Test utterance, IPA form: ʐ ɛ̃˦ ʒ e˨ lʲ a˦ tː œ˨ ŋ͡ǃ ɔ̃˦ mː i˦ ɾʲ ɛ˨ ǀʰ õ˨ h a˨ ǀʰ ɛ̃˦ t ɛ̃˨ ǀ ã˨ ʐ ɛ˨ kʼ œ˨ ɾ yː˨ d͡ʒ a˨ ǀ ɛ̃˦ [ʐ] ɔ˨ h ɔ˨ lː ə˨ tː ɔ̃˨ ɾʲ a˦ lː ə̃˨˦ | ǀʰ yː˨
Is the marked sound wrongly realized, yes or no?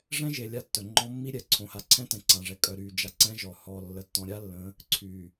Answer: yes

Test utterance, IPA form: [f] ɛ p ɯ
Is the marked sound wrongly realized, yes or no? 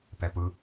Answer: yes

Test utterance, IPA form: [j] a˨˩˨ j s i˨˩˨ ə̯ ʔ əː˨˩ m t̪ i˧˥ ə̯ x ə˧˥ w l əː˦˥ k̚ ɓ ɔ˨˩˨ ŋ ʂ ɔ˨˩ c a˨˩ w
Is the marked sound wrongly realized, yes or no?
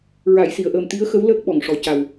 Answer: yes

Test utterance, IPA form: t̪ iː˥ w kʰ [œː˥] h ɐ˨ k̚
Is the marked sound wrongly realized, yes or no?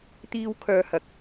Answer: yes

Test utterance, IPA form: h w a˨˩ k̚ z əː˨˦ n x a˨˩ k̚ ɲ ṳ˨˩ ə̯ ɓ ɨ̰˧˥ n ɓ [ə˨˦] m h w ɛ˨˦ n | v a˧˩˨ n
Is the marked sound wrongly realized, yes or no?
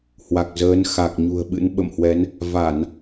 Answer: yes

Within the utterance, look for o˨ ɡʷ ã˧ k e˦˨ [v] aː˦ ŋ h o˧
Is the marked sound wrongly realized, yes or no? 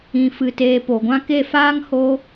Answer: yes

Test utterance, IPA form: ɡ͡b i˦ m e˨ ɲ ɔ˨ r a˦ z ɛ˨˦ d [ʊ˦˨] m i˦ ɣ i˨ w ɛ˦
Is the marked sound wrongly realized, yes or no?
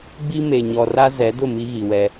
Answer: no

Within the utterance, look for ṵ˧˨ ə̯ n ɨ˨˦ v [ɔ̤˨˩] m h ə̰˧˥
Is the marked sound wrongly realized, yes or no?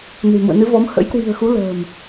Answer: yes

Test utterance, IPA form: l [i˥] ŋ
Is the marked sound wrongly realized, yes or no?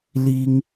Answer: no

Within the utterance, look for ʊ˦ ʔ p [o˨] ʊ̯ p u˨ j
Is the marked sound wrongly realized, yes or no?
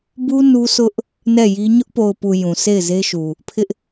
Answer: no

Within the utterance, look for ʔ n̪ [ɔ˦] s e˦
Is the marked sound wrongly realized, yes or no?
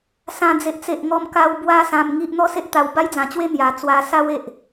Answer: no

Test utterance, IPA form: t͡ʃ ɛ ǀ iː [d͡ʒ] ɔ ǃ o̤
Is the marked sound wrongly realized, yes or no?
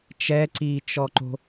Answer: yes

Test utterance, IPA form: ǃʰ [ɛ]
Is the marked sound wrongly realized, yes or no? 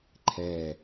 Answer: no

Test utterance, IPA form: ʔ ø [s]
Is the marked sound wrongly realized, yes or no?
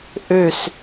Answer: no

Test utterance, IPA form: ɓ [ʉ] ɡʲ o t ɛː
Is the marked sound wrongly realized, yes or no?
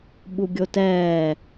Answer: yes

